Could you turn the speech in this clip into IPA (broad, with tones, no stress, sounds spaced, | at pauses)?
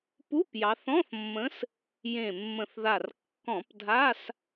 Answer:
p u˧˥˧ p j ɑ˩˧ θ ɔ̃˧˥˧ θ mː ə̃˨˥ s | j ẽ˨˩ mː ə̃˨˩ θ ð a˨˩ r kː ɔ̃˧˩˧ p dʱ a˧˥˧ s